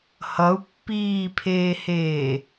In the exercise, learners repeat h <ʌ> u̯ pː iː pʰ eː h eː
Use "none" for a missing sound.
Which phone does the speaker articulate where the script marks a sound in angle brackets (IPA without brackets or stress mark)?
ʌ